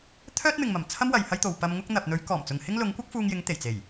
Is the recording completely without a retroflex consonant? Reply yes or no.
yes